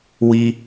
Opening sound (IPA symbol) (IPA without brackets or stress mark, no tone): w